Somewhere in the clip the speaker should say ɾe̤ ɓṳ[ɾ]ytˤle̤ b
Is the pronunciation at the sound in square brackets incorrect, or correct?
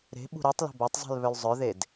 correct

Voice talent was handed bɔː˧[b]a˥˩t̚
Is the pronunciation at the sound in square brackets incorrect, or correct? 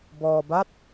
correct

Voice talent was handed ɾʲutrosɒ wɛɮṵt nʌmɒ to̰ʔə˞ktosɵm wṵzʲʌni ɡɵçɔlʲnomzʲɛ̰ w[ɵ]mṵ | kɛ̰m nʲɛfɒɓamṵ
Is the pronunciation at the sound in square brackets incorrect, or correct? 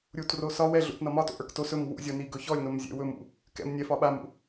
correct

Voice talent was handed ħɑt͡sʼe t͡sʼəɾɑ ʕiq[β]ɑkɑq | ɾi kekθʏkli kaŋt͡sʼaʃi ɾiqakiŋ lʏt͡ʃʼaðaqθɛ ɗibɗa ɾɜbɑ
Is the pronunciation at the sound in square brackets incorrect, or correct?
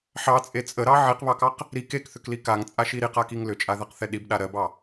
correct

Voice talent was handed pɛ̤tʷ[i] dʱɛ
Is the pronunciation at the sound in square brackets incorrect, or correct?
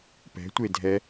incorrect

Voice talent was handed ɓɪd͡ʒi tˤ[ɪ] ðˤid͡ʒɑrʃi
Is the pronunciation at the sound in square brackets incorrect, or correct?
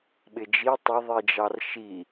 correct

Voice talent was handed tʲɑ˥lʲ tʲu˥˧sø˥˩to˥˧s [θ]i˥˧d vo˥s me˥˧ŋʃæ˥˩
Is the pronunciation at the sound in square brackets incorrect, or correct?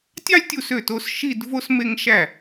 incorrect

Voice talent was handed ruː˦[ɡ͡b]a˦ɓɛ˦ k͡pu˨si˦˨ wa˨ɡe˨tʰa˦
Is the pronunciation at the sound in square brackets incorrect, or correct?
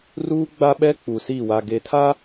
correct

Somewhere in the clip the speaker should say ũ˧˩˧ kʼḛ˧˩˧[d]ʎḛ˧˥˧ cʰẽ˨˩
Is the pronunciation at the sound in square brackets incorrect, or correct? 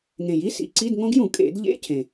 correct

